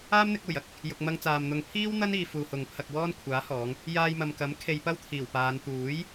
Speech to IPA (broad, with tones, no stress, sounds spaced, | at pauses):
aː˥ m n̪ ɪ˧ k̚ uː˨˩ j ɐ˧ k̚ | j ʊ˨ k̚ m ɐ˧ ŋ t͡s aː˨ m n̪ ʊ˨ ŋ pʰ iː˥ w n̪ ɐ˥ n iː˧ f uː˨ h ʊ˨ ŋ pʰ ɐ˧ k̚ w ɔː˥ n kʷʰ aː˨˥ h ɔː˨˧ ŋ | j aː˧ j m ɐ˨ m k ɐ˨˥ m kʰ e˧ j p ɐ˥ w t̪ʰ iː˨˩ w p aː˨˧ n t̪ uː˨˥ j